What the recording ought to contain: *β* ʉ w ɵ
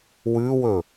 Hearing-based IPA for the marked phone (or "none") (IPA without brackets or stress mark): w